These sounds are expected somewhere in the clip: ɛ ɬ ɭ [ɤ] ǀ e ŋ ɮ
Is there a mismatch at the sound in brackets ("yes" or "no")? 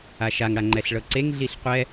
no